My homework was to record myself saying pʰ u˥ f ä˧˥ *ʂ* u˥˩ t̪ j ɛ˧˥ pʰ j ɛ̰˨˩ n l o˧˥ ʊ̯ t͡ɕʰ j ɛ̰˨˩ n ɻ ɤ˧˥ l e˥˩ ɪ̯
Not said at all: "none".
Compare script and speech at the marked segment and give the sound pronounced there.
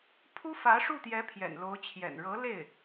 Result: ʂ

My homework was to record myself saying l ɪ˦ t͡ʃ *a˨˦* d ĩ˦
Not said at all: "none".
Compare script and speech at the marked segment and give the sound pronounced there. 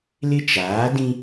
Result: aː˨˦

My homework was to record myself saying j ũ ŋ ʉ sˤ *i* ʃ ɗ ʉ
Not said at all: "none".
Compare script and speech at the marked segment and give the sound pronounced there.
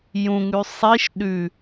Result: i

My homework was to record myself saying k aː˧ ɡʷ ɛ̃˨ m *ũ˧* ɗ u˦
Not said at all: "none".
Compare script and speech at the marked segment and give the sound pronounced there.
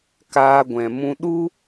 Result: ũ˧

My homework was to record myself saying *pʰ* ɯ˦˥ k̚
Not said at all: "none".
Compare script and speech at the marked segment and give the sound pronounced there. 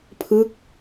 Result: pʰ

